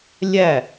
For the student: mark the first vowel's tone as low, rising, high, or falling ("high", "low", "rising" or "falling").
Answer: falling